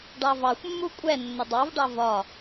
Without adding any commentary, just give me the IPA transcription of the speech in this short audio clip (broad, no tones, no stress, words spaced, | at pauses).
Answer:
ɖɑvɑxʷmːu kʷʼɛ nːədˤɑvɖɑ vɒ